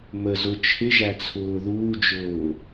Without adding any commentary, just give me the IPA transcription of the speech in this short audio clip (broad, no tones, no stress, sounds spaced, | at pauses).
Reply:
m ə z ʊ t͡ʃʰ ɪ ʒ æ t͡sʰ ʊː ð uː d͡ʒ ʊː